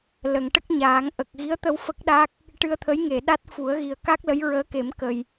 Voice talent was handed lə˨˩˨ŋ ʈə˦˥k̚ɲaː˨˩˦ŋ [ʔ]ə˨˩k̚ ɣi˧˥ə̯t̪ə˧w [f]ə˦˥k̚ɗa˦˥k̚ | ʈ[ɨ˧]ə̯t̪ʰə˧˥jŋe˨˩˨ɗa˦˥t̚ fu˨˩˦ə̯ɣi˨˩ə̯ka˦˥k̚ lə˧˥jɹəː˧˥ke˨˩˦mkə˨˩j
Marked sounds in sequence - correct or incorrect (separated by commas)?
correct, correct, correct